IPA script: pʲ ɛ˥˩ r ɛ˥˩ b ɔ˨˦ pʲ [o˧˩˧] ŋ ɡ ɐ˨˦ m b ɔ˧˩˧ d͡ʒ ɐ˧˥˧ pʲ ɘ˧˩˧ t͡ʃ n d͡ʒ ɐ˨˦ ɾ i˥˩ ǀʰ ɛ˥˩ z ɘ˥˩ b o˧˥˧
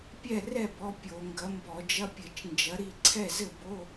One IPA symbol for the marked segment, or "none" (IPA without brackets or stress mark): o˧˩˧